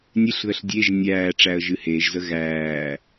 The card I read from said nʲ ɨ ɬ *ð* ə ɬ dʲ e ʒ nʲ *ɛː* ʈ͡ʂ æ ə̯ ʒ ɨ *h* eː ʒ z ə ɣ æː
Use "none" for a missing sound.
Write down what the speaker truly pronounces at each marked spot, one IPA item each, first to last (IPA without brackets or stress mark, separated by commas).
ð, æː, h